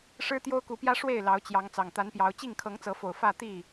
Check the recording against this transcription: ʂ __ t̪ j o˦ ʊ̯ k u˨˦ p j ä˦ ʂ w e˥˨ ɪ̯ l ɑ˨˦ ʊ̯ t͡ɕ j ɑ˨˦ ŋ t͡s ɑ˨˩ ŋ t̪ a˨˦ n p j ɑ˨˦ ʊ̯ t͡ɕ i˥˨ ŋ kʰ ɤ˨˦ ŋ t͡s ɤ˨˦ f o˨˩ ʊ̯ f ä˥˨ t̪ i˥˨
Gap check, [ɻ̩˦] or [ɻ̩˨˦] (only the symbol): ɻ̩˦